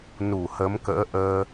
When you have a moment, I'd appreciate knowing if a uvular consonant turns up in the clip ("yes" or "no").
no